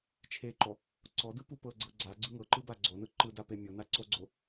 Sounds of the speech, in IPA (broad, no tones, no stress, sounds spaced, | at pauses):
t͡ʃʰ e ǃ ɔ | ǀ ɔ d ɯ p u p ɤ ɡ͡ǀ ɤ ɡ͡ǀ a ɡ͡ǀ ɯ ŋ ɤ ǃ ɯ b a ɡ͡ǀ o n ɯ ǃ ɯ d a p e mʲ o n a ǀ o ɡ͡ǀ o